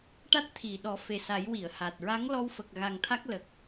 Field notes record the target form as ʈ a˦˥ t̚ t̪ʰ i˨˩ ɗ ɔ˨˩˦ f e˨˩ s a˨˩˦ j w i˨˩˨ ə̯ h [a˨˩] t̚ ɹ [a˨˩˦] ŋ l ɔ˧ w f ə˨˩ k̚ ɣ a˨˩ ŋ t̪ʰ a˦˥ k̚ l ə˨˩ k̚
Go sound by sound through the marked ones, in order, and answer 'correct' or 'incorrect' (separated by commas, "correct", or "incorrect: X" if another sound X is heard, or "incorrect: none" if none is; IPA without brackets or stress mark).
correct, incorrect: a˧˥